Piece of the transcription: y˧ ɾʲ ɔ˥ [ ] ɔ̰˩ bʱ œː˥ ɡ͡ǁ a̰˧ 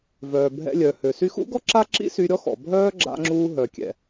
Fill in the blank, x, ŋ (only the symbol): x